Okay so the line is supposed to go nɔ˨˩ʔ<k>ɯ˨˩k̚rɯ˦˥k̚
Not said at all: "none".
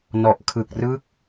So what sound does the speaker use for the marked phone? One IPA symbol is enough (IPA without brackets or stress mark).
kʰ